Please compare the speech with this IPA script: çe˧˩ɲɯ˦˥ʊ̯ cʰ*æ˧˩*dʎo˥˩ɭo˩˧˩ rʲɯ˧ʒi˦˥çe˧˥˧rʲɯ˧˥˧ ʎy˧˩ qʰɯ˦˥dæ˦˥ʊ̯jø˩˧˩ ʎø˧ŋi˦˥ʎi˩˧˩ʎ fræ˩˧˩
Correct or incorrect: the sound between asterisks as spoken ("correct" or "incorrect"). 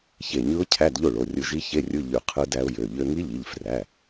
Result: incorrect